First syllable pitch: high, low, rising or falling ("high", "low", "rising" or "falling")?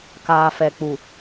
low